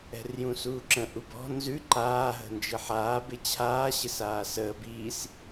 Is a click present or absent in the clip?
present